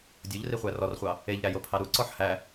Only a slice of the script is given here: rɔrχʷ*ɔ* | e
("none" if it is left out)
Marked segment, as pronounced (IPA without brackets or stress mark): ɑ